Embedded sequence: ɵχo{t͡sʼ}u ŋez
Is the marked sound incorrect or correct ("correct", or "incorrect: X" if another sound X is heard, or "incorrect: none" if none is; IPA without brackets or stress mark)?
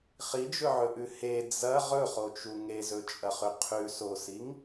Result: incorrect: t͡ʃ